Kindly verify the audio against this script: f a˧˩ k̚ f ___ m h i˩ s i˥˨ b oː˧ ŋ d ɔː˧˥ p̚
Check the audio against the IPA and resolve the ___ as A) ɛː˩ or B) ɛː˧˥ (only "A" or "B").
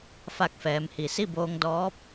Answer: A